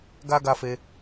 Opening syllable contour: high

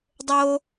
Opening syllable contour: high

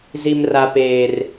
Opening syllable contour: high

